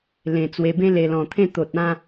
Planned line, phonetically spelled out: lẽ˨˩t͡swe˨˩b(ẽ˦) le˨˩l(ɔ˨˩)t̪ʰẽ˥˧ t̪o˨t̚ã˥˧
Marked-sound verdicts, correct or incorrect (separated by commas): correct, incorrect